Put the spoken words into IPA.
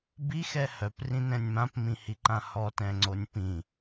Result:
bixɛ hœprĩnɛ̃nʲ mãpmĩhiǃã hɔtɛ̃ŋ͡ǀonʲ pĩ

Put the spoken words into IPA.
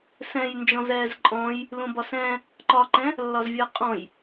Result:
sɛ̃jnd͡ʒɔ̃zɛːz ǃʼɔ̃j | lũbɒsɛ̃ | ǃɒǃɛ̃ | lːɒzvʲəːqʼɔ̃j

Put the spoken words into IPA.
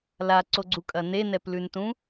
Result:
laǀoɡ͡ǀukʼɐ nenɛplʉntũ

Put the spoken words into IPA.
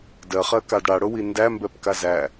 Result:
dɜχɜkad ɽaɽʊwi ndæmbɛpka zæ

